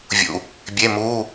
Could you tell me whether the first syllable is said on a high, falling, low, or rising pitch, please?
low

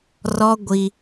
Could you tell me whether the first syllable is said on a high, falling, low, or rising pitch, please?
high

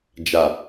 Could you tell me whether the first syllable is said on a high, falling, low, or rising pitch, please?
low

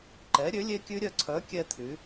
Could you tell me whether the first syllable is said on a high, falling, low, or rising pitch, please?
rising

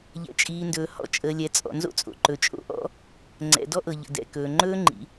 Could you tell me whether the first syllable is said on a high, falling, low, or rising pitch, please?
low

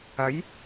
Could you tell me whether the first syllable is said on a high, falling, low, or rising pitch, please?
rising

